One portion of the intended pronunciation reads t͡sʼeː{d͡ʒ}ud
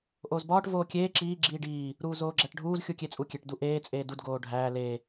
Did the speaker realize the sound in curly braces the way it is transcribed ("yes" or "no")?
no